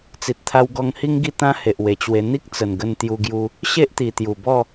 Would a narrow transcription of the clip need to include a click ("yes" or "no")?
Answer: no